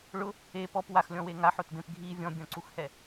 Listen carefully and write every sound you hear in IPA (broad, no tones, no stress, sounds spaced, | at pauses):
ɭ ʊ | e p ɔ p w a x lʲ ɔ̃ w e ŋ a ħ o t b ẽ p ɡʱ i vʲ ɔ̃ bʲ ɔ̃ ǀ u x h ɛ